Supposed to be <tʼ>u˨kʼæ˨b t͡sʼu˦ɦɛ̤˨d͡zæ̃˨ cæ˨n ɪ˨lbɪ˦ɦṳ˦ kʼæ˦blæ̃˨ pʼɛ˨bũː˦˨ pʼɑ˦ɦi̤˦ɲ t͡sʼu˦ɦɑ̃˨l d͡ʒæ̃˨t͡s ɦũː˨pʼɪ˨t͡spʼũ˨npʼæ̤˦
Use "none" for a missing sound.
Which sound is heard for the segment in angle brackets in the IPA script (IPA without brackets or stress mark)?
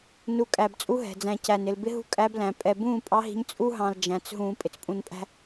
n